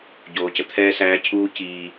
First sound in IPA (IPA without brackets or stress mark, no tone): ɟ